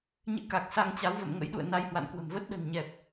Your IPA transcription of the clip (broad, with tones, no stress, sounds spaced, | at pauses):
ɲ ɨ̰˧˥ k a˨˩ k̚ s a˧ ŋ t͡ɕ a˨˦ w v ə̰˧˨ m ŋ ə̰˧˥ j ɗ ṵ˧˨ ə̯ n a˧ j h w a̰˧˨ n k w ə̤˨˩ m v ə˦˥ t̚ ɗ ə̤˨˩ n ɲ ɛ˨˩ p̚